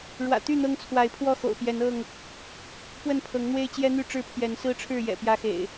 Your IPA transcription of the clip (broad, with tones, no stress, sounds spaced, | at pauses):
ɻ w ä̰˨˩ t̪ y˥˨ n̪ ɤ˦ ŋ t͡sʰ w a˨˦ ɪ̯ pʰ w ɔ˥˨ x o̰˨˩ ʊ̯ p j ɛ˨˦ n ɤ˥˨ ŋ | p w ə˥˨ n pʰ ɤ˨˦ ŋ n̪ w e˦ ɪ̯ t͡ɕ j ɛ˦ n̪ y˥˨ ʈ͡ʂ ɻ̩˥˨ pʰ j ɛ˨˦ n s ɹ̩˦ ʈ͡ʂʰ ɻ̩˥˨ j ɛ̰˨˩ p j ä˦ x ḛ˨˩ ɪ̯